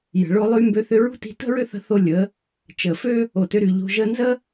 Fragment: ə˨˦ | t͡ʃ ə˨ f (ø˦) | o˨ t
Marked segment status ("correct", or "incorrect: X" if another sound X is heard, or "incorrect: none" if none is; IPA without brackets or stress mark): correct